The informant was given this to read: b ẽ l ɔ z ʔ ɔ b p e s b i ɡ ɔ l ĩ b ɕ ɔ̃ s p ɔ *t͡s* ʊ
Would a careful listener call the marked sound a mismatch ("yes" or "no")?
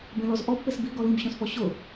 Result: yes